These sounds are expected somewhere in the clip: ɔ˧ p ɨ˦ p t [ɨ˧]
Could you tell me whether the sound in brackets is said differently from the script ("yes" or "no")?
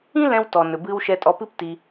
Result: yes